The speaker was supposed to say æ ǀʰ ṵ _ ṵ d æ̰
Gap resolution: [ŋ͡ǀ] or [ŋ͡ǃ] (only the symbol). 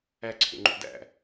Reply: ŋ͡ǃ